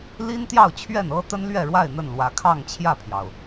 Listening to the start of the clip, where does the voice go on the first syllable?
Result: high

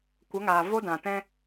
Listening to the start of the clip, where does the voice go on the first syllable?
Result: rising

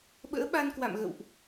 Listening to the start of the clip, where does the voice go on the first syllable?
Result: rising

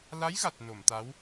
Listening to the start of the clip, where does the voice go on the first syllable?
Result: rising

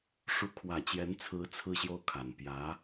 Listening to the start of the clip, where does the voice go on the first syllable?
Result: rising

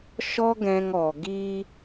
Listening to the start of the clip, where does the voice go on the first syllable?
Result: high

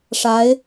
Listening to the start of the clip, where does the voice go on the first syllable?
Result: rising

